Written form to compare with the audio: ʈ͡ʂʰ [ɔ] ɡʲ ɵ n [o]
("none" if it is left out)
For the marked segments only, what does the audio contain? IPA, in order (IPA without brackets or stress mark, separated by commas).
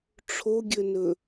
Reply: o, ɵ